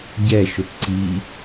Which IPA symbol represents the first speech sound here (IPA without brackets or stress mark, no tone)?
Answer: ɟ